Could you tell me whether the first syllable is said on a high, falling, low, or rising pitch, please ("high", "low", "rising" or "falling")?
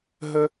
high